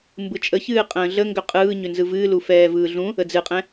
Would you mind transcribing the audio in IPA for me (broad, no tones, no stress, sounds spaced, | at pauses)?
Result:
m b ɯ t͡ʃʼ ə ç ɨː qʼ ə̃ː ɮ ə ŋ ɡ ʏ qʼ ɯː ɲ ʏ n z ɯ v ɨː l u f ɛː v ɯː ɮ ũ | ə d͡z ɨ qʼ ɛ̃